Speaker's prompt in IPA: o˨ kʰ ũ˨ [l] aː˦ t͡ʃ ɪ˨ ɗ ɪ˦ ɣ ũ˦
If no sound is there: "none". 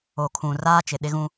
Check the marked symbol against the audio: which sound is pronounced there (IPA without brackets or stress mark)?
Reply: r